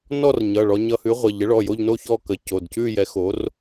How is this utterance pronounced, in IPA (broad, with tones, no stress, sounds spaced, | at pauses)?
n ɔ˥˧ r ɲ ʌ˩˧˩ ɭ ɔ˧ ɲ ʌ˧ h ʉ˨˥ ʁʷ ə˩˧˩ ʎ ə˨˥ ɭ ɔ˩˧˩ j o˥˧ ʎ n o˥˧ ç ɔ˥˧ k ə˨˥ c o˩˧˩ d c ʉ˥˧ j ɛ˨˥ x o˨˥ r